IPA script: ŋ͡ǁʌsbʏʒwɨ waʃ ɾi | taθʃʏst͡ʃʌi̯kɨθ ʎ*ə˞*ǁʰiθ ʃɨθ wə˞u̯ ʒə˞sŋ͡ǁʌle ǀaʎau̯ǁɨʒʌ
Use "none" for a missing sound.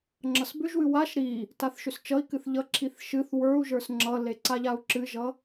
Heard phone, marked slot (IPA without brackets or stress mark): ʌ